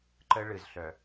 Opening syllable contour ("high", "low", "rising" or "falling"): high